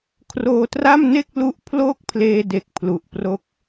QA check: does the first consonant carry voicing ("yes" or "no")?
no